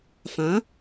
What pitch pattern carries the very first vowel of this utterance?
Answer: rising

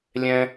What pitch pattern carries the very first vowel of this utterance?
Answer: high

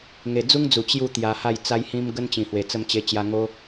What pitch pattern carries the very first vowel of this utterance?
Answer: low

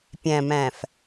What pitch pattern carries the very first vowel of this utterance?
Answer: low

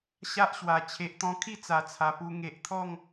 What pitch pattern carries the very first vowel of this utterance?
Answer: high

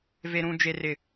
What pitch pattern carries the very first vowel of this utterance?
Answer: low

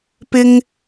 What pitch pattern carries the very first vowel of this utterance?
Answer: high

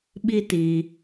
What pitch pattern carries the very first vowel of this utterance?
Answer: high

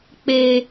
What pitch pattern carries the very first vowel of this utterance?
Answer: high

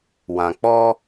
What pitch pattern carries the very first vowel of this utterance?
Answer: low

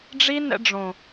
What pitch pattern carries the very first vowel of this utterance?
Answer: high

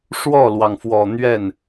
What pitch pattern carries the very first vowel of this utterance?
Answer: falling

